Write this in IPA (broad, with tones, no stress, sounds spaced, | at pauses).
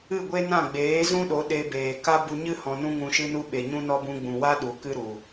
ɨ˦˨ ɡʷ e˦ n ã˦˨ ɡ͡b eː˨˦ z ũ˦ ɗ o˨˦ ɗ e˧ b eː˨ k a˦ b u˧ ɲ ɨ˦ h ɔ̃˧ n ũ˦ ŋ ũ˧ ʃ ɨ˦ n u˦ ɓ e˨ ɲ ũ˦ n ɔ˦ b ũ˧ ɡ͡b ũ˨ w a˦ ɗ u˨ k ɨ˦ ɾ u˨